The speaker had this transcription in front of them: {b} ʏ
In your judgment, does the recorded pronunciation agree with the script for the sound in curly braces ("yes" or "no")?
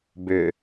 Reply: yes